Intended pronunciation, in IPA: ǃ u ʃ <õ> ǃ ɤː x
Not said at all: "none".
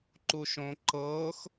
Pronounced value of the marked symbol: õ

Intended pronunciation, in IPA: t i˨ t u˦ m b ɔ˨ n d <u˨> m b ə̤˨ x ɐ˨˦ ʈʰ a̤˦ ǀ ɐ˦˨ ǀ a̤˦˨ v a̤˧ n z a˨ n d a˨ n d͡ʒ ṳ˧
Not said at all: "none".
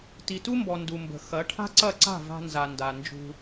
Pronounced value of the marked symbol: u˨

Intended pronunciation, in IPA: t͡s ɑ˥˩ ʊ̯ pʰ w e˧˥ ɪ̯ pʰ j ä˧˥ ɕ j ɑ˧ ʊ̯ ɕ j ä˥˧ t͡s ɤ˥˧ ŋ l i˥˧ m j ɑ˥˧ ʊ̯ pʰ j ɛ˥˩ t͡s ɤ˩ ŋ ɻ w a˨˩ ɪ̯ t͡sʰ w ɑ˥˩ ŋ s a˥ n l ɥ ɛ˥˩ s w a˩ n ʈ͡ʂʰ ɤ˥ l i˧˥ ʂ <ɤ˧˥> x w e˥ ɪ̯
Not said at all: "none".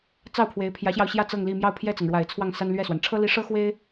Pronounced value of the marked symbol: ɤ˥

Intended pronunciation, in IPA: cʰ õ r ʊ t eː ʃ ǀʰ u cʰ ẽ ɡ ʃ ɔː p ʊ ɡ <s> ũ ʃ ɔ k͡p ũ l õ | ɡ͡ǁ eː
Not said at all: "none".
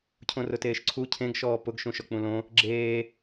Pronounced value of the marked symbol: ʃ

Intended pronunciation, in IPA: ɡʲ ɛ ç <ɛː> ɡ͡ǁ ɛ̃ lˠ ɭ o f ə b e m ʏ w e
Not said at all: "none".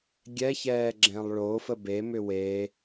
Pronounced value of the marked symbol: ɛː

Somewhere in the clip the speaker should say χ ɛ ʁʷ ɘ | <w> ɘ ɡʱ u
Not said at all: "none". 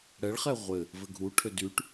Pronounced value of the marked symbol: v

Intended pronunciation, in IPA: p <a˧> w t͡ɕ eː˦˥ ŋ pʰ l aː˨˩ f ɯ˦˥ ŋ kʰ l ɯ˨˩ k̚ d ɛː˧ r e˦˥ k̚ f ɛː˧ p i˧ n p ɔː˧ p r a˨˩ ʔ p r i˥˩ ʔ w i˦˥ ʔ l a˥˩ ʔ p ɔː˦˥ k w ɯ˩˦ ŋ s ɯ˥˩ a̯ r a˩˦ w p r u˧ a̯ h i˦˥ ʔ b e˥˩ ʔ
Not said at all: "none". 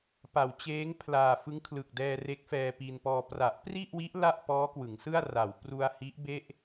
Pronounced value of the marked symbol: a˩˦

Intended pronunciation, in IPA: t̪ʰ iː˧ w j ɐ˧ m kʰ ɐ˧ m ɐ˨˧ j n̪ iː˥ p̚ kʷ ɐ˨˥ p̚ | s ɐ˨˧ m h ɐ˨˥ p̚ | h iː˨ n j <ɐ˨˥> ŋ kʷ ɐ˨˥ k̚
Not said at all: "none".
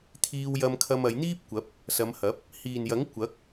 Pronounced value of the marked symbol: ɐ˨˥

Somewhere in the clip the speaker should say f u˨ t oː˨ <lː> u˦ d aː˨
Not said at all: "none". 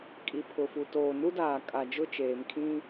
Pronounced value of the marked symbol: n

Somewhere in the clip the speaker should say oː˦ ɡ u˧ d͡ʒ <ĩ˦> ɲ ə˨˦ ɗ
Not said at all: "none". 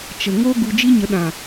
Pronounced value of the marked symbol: i˦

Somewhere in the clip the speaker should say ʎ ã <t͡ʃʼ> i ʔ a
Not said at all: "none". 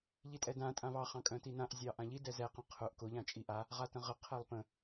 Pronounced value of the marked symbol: t͡ʃʼ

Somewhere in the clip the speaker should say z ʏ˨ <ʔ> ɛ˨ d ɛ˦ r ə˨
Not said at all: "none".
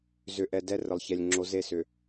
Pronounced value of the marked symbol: ʔ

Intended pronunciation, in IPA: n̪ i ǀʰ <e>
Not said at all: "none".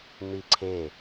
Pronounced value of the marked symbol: e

